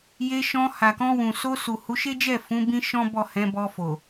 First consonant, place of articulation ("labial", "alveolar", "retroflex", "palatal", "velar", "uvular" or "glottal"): palatal